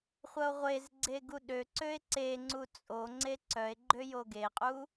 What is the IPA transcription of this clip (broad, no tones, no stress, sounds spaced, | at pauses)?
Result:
χʷ ɐ o̯ ʁʷ e z ɡ͡ǀ e ɡ u ɗ ø ǀ ø e̯ ǀ e ŋ͡ǀ u t͡sʼ o ŋ͡ǀ e ǀ œ e̯ ɡ͡ǃ ø j o ɡ e qʼ u